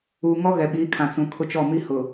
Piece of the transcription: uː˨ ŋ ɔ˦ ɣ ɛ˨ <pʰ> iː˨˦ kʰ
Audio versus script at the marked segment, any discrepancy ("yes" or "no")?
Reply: yes